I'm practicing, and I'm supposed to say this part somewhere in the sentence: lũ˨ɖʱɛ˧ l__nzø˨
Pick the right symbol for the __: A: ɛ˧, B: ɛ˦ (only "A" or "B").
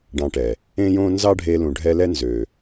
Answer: B